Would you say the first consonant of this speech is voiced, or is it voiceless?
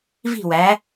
voiced